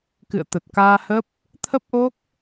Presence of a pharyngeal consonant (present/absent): absent